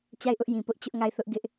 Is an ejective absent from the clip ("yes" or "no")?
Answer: yes